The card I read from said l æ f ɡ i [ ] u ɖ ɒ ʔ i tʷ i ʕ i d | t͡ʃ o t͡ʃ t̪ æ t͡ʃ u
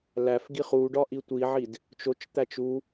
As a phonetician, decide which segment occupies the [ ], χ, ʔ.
χ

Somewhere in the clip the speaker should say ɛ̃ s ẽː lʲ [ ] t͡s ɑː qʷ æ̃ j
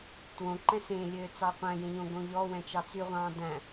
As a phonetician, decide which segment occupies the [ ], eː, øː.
øː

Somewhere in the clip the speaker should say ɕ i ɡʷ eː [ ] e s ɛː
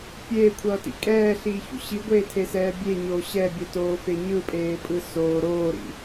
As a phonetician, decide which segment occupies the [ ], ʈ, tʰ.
tʰ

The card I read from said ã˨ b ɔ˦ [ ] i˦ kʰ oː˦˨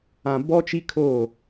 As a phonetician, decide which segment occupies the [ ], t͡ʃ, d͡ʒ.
t͡ʃ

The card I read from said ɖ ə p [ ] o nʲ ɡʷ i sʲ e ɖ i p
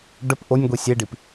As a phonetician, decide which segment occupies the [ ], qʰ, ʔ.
ʔ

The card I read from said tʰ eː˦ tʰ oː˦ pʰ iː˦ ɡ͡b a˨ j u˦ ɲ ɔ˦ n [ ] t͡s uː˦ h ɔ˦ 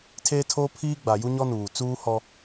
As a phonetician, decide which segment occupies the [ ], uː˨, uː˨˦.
uː˨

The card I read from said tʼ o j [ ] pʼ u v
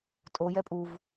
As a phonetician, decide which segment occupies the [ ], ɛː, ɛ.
ɛ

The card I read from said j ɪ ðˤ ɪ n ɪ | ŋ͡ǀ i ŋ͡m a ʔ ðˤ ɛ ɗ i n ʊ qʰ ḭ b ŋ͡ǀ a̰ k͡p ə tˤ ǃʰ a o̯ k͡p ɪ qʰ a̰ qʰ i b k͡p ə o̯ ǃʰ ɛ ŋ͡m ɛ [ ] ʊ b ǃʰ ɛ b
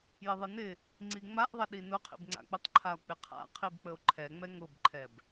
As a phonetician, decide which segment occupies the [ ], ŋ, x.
ŋ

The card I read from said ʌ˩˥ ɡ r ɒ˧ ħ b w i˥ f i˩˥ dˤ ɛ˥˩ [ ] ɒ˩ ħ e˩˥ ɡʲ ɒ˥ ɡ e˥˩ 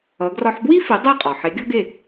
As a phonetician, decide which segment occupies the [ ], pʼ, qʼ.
qʼ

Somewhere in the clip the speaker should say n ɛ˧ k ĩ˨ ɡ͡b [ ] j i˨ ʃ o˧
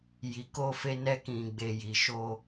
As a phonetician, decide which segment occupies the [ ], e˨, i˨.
e˨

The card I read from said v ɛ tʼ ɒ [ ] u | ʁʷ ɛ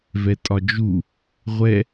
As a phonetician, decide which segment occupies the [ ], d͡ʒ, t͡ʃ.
d͡ʒ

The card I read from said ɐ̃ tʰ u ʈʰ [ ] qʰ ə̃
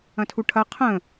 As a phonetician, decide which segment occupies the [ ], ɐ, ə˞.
ɐ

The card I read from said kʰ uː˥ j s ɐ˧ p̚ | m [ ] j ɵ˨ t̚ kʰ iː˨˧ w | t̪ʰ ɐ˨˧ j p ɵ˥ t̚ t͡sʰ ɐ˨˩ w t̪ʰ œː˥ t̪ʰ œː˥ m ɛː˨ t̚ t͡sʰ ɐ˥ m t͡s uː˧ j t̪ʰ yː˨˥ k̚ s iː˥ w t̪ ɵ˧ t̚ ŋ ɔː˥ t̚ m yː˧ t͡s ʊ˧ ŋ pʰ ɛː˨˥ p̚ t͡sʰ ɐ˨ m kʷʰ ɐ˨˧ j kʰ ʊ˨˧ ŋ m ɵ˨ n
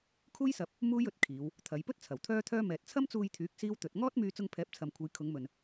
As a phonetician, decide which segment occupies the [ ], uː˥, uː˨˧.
uː˥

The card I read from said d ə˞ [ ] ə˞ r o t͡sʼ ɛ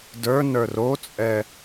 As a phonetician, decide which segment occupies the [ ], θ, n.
n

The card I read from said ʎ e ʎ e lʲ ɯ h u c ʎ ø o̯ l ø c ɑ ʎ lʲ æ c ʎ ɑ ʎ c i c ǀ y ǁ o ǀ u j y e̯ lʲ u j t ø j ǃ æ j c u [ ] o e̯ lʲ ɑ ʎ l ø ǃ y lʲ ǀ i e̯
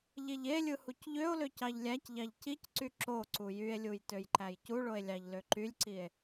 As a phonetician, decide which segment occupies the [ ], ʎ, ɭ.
ɭ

